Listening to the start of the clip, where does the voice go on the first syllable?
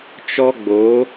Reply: high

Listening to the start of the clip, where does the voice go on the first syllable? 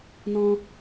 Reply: high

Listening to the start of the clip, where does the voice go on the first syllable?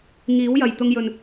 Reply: rising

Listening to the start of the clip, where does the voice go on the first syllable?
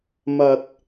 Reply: low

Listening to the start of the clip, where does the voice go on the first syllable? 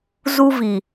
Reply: high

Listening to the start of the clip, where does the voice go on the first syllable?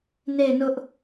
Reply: falling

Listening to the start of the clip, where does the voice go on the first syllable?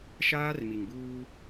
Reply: high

